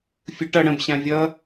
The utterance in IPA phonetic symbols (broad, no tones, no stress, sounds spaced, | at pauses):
fʲ ɯ ʈ ʌ ɽ ə̃ b ɕ ã vʲ ʌ